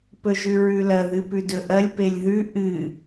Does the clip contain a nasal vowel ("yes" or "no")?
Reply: no